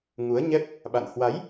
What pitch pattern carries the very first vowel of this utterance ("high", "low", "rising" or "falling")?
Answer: rising